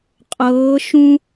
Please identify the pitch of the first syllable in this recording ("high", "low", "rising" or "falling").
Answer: rising